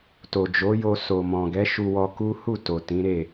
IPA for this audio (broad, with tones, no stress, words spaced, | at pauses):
to˨d͡ʒo˨˦jo˧ so˨mɔ̃˨ɡɛ˨˦ ʃu˧wɔ˧ku˦ hu˦˨ to˨ tĩ˨˦ɾe˦˨